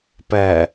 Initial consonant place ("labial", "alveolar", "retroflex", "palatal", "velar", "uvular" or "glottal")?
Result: labial